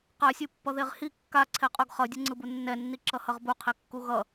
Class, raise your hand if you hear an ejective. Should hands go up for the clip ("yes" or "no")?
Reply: yes